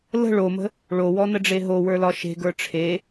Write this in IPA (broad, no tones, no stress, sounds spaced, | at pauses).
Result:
l ə̤ ɭ o m ə̤ | ɭ o w ɔ n ə ɖ͡ʐ e ɦ o w ə˞ l ɒ ʃ e̤ ɡ ə˞ ʈ͡ʂʰ e